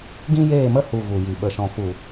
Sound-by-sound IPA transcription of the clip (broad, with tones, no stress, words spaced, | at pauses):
ɡĩ˦jeː˦˨mə˦ hu˨ ɣu˨ji˨ ɓə˨ʃɔ̃˨fu˨